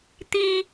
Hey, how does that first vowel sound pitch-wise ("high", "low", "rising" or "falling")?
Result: high